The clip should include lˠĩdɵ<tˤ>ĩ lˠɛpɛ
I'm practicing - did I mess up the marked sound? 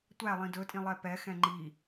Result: yes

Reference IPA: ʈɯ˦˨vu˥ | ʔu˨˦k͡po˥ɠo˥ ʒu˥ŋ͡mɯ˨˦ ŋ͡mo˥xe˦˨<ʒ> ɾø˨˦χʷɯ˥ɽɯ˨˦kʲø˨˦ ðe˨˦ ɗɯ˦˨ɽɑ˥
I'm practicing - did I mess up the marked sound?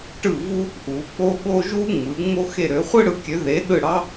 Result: yes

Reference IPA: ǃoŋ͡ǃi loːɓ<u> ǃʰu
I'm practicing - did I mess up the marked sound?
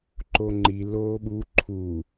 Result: no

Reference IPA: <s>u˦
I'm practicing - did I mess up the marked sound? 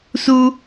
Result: no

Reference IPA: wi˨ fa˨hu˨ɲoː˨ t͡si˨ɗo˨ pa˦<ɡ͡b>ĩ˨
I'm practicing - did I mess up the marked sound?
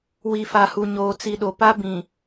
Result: yes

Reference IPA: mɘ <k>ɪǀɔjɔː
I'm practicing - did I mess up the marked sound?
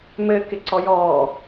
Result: no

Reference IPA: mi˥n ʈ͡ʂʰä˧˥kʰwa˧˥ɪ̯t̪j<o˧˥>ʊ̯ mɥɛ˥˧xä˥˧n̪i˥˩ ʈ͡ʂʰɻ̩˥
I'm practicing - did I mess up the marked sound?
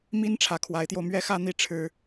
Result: yes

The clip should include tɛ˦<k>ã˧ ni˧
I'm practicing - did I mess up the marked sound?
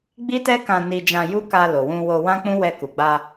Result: no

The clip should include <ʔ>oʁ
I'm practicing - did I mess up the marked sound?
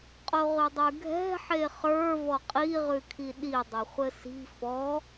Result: yes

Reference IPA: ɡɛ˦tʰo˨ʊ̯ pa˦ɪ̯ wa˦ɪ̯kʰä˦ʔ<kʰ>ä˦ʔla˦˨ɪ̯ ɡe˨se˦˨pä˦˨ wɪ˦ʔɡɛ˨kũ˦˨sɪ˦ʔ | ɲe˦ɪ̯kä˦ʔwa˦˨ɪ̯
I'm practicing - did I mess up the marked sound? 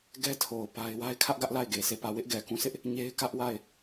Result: yes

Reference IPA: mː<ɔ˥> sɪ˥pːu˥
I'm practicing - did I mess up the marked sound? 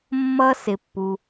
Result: yes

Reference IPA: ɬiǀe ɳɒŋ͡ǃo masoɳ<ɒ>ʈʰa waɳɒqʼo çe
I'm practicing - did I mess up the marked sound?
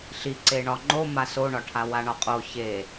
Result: no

